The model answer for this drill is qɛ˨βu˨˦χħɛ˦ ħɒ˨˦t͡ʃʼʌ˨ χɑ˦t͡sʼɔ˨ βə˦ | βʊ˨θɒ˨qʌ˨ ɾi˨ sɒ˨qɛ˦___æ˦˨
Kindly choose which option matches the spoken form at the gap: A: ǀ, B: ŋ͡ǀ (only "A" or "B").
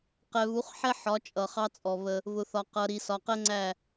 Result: B